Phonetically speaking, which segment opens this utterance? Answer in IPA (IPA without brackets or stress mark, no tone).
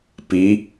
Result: p